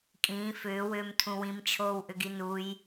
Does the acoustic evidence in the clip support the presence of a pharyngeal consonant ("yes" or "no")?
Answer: no